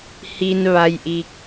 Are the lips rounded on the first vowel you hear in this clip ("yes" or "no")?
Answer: no